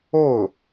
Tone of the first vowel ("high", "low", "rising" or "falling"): falling